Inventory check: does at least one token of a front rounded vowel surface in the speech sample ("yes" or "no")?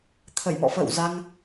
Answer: no